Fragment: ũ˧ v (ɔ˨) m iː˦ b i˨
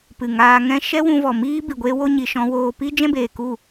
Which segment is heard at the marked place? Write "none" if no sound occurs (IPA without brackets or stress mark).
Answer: ɔ˨